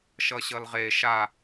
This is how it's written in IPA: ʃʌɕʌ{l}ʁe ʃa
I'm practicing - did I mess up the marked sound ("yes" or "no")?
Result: no